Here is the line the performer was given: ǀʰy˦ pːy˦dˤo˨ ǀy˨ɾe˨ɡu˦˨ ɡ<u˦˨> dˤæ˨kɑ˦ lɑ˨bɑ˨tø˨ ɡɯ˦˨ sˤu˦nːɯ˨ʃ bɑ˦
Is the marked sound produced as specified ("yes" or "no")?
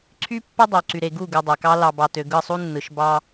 no